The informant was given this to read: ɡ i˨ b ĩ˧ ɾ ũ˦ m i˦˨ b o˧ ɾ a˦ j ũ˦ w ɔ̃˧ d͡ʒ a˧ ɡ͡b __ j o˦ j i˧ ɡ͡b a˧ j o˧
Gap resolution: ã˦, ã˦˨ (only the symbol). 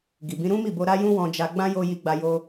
ã˦